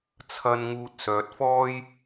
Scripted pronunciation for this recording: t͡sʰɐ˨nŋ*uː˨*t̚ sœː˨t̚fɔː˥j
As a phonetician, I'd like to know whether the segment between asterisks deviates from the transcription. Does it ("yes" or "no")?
no